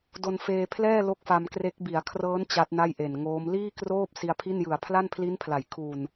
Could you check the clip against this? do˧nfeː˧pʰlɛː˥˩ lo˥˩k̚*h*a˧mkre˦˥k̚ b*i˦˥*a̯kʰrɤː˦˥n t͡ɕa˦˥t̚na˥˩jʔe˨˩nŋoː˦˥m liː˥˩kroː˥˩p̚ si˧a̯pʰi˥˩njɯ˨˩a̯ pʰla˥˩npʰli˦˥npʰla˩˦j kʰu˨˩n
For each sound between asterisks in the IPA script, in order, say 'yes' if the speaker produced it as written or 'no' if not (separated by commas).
no, no